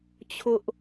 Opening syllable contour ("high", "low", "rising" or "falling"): high